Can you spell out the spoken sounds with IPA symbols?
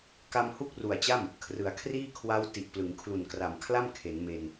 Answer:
k a˧ m h u˥˩ k̚ r u˨˩ a̯ t͡ɕ a˥˩ m | kʰ r ɯ˩˦ a̯ kʰ r iː˥˩ kʰ w a˦˥ w t i˨˩ ʔ p l ɯ˩˦ ŋ kʰ l u˨˩ n k r a˨˩ m kʰ l a˥˩ m kʰ e˩˦ n m e˧ n

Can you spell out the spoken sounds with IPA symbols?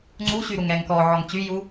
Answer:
ŋ͡ǀ u ɕ y ɾ u ŋ ɛ ŋ k ɔ ʕ ɔ ŋ t͡ɕ y j u

